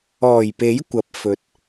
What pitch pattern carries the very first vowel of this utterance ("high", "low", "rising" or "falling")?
low